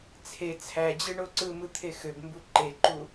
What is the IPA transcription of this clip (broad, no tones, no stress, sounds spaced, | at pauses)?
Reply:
t͡sʰ e t͡sʰ æ d͡ʑ ɯ ɳ o ǀ ɯ m ɯ t̪ʰ e x ø b m b u ǃ e ǃ u